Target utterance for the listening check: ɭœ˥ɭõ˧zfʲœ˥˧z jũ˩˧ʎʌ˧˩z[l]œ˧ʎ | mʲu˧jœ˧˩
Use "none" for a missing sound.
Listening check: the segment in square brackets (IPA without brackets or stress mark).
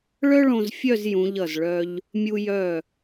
ɭ